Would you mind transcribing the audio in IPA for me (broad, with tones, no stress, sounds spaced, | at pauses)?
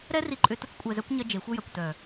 ɾ ɛ˦ r i˧ ǃʼ ʏ˧ t ʊ˦ t͡s kʷʼ ɛ˧ z œ˦ kʷ ɲ ɐ˦ d͡ʒ e˨˦ xʷ ɐ˦ j ɐ˨ kʷ t œ˨